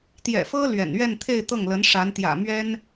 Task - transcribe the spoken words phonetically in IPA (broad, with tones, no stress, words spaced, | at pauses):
t̪jɛ̰˨˩fɤ˥ lɥɛ̰˨˩n ɥɛ˥˧nt̪ʰe˥˧ɪ̯ t̪ɤ˥˩ŋlə˧˥nʂa˧˥n t̪jä̰˨˩mɥɛ˥n